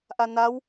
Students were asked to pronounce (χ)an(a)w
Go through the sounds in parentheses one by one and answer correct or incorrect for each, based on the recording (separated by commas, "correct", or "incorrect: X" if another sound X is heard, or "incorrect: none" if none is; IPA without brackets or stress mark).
incorrect: ʔ, correct